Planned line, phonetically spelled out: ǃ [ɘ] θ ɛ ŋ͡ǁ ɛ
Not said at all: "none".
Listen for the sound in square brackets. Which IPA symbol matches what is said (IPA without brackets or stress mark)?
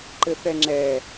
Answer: ɘ